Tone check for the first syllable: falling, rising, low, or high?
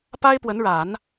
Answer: high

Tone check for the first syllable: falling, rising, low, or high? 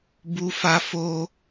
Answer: high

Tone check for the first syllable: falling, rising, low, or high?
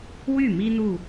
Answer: falling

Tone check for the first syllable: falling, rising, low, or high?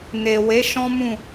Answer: low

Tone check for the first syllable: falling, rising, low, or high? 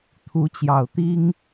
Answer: rising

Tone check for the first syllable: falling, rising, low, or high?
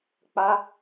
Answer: high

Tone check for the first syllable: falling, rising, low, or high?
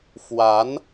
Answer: rising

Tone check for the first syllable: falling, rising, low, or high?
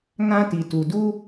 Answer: high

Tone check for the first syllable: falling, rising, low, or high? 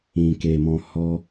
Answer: low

